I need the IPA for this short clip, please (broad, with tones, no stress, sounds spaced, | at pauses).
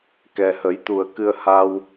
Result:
k ɛ˨˩ h ə˨˩˦ j t̪ u˨˩ ə̯ k ɨ˧ ə̯ h a˧ w